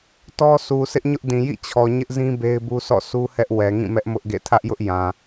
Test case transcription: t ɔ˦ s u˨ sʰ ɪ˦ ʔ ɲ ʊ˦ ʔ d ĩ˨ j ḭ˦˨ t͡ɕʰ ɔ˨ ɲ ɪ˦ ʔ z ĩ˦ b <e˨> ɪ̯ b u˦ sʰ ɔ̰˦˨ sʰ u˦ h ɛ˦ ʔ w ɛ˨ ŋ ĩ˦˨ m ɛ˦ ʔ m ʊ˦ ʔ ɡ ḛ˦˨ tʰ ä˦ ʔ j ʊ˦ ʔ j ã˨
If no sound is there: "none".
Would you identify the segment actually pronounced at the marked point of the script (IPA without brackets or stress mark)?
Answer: e˦